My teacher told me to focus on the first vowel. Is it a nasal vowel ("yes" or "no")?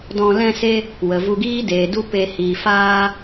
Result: yes